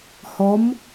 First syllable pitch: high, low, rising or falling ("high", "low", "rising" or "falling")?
rising